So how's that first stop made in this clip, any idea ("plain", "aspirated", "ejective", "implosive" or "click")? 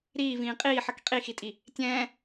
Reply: ejective